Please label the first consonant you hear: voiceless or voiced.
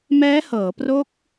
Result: voiced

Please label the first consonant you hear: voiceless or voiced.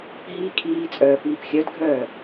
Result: voiced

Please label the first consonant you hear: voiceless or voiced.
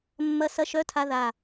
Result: voiced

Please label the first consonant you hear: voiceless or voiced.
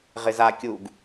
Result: voiced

